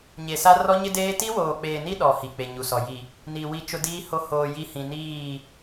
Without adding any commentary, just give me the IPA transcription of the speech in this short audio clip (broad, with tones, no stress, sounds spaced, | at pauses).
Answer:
ɲ e˨ s a˦ r ɔ˦ ɲ ɪ˦ d eː˦ t i˦ w oː˨ k͡p eː˨ n i˦ ɗ ɔ˨ h i˨ k͡p e˨ ɲ u˨ s ɔ˨ j i˨ | n i˨ w i˦ t͡ʃ ʊ˦ d iː˦ h o˦ h oː˨ j i˦ h ĩ˨ n iː˦˨